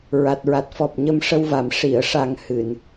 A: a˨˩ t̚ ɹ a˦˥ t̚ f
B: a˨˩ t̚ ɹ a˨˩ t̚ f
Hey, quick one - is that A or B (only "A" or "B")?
B